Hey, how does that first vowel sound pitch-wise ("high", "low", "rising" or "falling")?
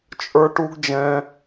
high